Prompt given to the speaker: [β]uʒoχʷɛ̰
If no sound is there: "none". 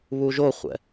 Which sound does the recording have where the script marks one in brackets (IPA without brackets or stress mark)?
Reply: β